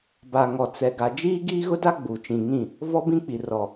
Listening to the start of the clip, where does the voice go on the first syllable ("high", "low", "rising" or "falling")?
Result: low